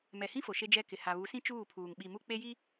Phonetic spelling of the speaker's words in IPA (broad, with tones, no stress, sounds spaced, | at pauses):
m ɛ˨ h ĩ˦ f o˨ ʃ e˦ d͡ʒ ɛ˦ k ɪ˨ h a˨ β u˨˦ s ĩ˦ t͡ʃ uː˦˨ pʰ uː˨ ŋ ɓ i˨ m u˦ k͡p e˦ j i˦